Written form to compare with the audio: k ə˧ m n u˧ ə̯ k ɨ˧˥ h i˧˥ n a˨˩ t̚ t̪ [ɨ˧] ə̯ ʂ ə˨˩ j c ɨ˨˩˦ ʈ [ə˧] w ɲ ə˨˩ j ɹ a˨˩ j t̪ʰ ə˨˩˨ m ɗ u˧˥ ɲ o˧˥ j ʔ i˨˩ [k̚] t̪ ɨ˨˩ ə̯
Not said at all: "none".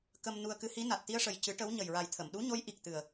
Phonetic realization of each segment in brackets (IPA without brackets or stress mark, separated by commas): i˧, ə˧˥, k̚